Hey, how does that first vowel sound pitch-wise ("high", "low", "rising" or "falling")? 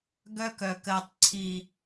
high